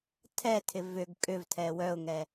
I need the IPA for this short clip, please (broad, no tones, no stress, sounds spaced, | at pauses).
tʰ ɛ tʰ ɪ v ʏ ɡ kʼ ʏ v tʰ ɛ w œ ʊ̯ ŋ ɛ